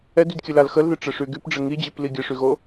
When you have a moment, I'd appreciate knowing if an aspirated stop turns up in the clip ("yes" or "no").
no